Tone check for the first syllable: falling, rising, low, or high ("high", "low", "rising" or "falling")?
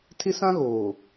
high